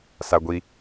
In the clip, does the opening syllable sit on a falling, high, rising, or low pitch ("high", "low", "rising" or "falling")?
high